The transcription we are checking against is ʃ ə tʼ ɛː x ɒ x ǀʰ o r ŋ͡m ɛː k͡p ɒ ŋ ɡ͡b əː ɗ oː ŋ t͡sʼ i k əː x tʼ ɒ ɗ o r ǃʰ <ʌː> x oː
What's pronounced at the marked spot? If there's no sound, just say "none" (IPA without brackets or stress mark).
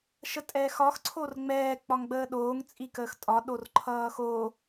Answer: ʌː